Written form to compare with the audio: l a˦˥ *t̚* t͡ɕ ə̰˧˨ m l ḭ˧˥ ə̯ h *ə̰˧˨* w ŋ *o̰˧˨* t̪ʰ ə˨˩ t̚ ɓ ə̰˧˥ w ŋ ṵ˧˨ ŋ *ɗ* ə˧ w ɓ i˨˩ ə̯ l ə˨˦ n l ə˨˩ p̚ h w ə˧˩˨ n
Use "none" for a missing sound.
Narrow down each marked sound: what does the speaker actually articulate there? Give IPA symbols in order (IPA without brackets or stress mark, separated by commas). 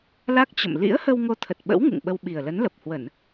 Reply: k̚, ə˧, o˧, ɓ